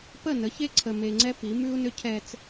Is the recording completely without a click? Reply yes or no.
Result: no